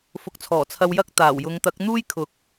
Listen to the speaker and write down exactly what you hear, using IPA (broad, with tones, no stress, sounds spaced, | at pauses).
f ʊ˨˥ k̚ t͡sʰ ɔː˨˩ t͡sʰ ɐ˧ w j ɐ˥ k̚ t̪ aː˨˩ w j ʊ˨˧ ŋ t̪ ɐ˨˥ k̚ n̪ uː˥ j kʰ ʊ˨˥ k̚